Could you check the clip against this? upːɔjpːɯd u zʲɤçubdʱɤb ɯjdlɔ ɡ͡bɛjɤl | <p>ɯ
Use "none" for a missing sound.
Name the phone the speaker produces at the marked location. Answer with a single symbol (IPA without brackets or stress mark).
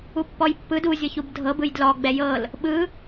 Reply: ɓ